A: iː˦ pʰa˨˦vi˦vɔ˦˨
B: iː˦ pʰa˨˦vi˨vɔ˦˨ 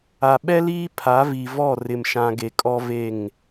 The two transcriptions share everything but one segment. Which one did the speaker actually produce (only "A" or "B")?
B